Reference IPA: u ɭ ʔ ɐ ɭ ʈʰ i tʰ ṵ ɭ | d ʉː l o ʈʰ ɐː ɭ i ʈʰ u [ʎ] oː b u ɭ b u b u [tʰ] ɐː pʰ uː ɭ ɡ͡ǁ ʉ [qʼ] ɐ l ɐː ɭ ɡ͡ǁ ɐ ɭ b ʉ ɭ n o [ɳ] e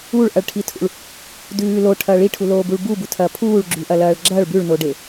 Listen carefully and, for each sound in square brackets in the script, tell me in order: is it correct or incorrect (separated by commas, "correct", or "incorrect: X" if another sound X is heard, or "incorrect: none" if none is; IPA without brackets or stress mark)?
incorrect: l, correct, incorrect: ʔ, incorrect: ɖ